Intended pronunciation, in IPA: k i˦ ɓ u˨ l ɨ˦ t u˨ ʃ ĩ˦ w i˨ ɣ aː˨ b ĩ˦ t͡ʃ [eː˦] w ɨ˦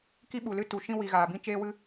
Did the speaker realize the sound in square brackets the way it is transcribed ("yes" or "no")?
yes